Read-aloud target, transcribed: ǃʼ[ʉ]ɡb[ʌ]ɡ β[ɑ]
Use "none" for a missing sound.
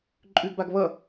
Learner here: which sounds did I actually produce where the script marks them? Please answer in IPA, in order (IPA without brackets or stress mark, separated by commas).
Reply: ʉ, a, ʌ